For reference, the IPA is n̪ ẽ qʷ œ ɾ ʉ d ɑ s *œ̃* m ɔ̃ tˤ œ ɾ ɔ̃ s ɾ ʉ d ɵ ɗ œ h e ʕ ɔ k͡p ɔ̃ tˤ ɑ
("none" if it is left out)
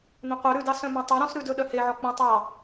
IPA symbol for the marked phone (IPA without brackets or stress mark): œ̃